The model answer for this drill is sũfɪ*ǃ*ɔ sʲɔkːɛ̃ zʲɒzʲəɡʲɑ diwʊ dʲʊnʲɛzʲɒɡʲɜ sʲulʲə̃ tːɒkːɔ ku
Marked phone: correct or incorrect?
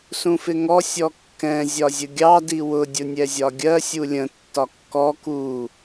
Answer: incorrect